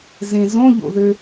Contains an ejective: no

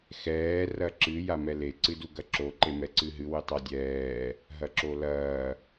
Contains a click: yes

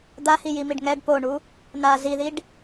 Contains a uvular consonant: no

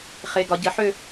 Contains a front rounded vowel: yes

